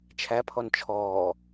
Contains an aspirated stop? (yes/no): yes